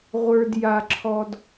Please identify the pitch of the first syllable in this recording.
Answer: low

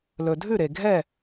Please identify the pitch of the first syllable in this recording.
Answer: low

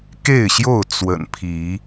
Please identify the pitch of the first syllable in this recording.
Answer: falling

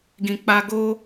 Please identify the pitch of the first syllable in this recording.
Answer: low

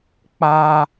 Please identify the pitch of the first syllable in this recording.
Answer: high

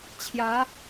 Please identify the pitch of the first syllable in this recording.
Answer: rising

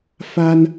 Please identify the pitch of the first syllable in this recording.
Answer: high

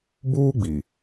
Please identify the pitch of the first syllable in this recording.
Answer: high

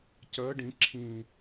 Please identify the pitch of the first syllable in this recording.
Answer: rising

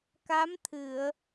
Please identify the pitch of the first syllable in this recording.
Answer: rising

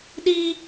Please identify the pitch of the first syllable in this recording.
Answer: high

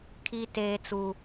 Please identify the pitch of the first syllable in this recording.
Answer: high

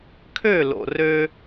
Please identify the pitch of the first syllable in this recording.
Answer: falling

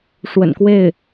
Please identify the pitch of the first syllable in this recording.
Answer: low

